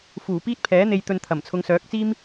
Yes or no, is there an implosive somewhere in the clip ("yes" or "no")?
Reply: no